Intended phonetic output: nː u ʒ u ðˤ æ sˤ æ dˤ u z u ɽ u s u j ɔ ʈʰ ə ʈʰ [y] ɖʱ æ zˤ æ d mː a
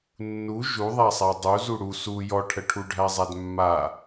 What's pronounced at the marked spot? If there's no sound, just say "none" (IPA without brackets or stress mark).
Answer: u